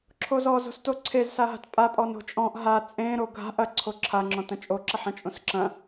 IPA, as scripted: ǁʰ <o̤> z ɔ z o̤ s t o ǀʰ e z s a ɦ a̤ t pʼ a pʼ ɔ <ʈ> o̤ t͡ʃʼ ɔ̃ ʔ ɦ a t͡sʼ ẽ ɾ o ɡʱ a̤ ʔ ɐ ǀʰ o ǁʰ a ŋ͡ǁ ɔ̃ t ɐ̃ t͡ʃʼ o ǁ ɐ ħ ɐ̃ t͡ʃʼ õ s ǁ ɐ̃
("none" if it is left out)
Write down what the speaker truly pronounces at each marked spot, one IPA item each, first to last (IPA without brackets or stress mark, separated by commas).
o, n